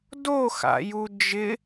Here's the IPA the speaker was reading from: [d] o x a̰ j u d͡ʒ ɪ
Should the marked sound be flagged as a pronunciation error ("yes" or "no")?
no